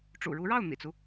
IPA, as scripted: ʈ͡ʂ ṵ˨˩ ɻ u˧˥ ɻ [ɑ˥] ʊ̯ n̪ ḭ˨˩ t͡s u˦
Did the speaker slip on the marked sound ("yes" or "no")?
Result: yes